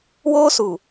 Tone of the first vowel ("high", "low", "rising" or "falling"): high